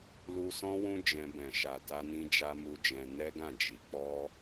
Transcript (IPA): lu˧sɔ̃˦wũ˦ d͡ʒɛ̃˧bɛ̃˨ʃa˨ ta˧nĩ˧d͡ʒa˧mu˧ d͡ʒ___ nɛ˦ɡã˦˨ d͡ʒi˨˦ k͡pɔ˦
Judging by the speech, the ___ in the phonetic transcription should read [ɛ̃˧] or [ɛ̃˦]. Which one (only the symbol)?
ɛ̃˧